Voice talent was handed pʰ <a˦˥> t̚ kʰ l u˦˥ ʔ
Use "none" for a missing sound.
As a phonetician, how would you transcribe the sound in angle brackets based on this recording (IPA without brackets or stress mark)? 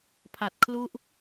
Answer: a˨˩